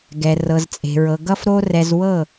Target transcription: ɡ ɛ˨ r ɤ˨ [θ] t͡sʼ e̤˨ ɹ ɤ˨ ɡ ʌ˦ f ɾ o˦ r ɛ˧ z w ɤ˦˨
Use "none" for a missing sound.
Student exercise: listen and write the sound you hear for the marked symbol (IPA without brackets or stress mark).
z